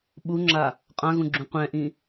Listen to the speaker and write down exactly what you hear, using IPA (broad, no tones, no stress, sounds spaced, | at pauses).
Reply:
ɓ u ŋ͡ǁ a | qʼ ã ɣ ũ ɡ͡ǁ ũ qʷ ɛ̃ ʔ ĩ